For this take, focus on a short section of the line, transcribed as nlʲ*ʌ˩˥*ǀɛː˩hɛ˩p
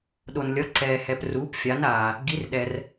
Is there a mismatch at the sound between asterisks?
no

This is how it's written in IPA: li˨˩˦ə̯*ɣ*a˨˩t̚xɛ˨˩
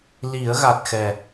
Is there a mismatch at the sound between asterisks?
no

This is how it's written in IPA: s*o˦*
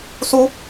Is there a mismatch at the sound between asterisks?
yes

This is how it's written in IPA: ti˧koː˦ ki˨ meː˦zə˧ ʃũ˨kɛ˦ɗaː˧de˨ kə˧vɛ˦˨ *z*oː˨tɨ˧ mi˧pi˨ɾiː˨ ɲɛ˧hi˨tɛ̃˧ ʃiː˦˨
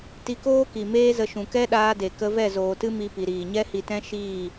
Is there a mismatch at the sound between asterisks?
no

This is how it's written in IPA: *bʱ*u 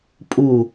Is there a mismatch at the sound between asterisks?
yes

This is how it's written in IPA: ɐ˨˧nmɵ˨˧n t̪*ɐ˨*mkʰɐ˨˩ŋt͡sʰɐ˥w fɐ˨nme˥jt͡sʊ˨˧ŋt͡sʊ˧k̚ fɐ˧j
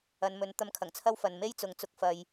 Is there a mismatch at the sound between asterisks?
yes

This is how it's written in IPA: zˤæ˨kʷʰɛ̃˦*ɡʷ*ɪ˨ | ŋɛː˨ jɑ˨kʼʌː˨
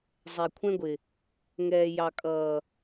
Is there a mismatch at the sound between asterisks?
no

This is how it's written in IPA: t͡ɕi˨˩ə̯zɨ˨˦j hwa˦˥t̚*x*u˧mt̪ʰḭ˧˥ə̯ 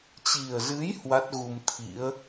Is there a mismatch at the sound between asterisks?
yes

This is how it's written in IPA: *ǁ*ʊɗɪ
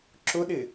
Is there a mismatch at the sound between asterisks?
no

